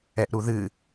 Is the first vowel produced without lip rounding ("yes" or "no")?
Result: yes